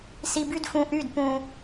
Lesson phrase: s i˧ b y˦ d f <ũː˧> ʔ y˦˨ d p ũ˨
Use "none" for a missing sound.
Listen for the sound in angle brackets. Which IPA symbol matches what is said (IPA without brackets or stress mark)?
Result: ũ˧